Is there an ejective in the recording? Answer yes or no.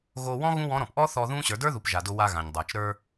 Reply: no